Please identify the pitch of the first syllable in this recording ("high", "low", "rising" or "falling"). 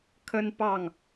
high